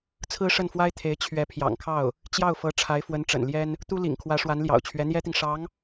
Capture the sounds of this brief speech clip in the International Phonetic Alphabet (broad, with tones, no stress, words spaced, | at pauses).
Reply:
t͡sʰɹ̩˥ʂə˥˩nfwa˥ɪ̯t̪ʰe˧˥ɪ̯ t͡ɕʰɥɛ˧˥pʰjɑ̰˨˩ŋkʰɑ˥˩ʊ̯ | t͡ɕjɑ˥˩ʊ̯fɤ˧˥ ʈ͡ʂʰa˧˥ɪ̯fwə˧˥nʈ͡ʂə̰˨˩nljɛ˥n | t̪u˥ lḭ˨˩ŋkʰwä˧˥ ʂwa˧˥nljɑ̰˨˩ʊ̯t͡ɕʰɥɛ˧˥ n̪jɛ˥t̪i˨ŋ ʂɑ˧˥ŋ